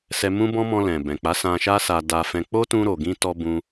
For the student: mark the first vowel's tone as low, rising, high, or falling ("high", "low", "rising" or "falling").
high